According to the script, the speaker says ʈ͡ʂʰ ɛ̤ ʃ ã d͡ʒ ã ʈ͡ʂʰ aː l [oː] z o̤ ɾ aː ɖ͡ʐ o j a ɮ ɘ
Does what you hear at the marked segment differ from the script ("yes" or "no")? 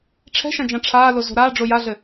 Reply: yes